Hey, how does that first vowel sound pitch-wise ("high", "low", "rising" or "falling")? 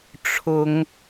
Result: rising